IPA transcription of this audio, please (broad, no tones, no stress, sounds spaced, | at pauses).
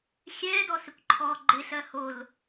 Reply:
xʲ ɛː d ɔ s ɪ kʷ ǃʰ ɔː ɡ͡ǃ ɪ ɬ ɜ h o l